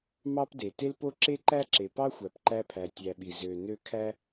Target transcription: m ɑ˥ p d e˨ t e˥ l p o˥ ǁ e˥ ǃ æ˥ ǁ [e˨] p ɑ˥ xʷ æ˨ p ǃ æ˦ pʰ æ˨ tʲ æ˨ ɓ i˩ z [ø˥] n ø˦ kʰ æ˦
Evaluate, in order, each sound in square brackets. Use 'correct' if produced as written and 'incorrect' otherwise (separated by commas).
correct, incorrect